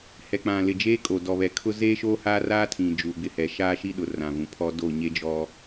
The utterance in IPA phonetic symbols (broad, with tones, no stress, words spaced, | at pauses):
hɛ˨k͡pã˨ lɪ˨d͡ʒeː˦kʼo˨ dɔ˨βɛ˨kʰʊ˦ zeː˦ʃo˦ haː˦ raː˦tʰĩ˨ d͡ʒuː˨ɡ͡bɪ˨hɛ˨ ʃaː˦ʃi˦ɗʊ˨ rã˨vũ˨pʰɔ˦ do˦˨ɲe˦d͡ʒɔ˦